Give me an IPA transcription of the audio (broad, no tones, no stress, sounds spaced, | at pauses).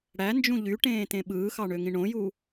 ɽ æ n d͡ʒ ũ ʎ y ʈ ẽː t ẽ ɓ ɯː x ɑ ɳ ø ŋ ĩ ɳ õ j u